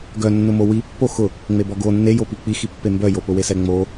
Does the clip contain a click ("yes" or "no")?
no